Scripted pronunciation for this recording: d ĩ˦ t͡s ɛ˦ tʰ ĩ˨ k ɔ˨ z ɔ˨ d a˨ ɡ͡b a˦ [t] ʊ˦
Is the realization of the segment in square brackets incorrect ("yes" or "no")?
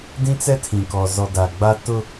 no